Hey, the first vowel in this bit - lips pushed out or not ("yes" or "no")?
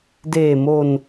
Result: no